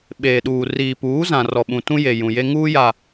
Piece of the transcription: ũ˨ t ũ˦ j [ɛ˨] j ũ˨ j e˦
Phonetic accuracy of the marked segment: incorrect: e˨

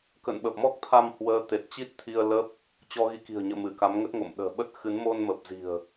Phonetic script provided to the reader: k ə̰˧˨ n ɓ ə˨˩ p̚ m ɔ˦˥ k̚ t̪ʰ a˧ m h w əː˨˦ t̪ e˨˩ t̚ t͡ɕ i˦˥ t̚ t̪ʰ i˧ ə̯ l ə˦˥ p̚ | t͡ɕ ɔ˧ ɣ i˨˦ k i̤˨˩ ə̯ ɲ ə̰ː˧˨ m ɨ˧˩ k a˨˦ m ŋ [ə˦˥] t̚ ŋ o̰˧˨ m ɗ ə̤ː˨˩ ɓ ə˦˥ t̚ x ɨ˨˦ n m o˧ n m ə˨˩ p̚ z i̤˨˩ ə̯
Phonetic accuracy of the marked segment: correct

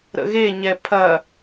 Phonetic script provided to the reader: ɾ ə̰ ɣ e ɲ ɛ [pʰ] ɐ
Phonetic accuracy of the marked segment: correct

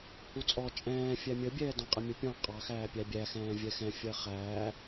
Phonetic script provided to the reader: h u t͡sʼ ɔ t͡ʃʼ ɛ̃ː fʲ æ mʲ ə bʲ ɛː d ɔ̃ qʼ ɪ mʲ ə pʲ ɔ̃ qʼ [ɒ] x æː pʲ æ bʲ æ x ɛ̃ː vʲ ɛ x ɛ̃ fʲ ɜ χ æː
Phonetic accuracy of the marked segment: incorrect: ɑ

